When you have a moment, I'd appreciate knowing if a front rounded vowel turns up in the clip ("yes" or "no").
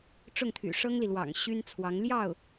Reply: yes